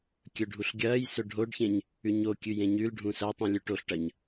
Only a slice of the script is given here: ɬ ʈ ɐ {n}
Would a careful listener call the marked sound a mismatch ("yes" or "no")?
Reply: yes